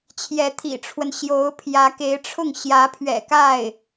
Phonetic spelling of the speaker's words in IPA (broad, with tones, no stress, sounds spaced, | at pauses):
t͡ɕʰ j ɛ˧˥ t̪ʰ ḭ˨˩ ʈ͡ʂʰ w ə˦ n ɕ j o˧˥ ʊ̯ pʰ j ä˧˥ k e˧˥ ɪ̯ ʈ͡ʂʰ ʊ˥˩ ŋ ɕ j ä˧˥ pʰ ɥ ɛ̰˨˩ k a˥˩ ɪ̯